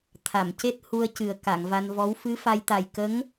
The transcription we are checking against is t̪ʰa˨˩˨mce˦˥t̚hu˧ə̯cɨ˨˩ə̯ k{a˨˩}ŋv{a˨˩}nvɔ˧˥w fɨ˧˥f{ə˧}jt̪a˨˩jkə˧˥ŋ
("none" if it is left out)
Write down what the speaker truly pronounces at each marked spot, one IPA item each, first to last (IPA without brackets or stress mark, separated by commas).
a˨˩˨, a˧, a˧